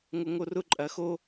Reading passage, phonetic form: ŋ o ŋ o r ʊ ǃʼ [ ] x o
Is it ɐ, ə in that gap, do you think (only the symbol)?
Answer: ɐ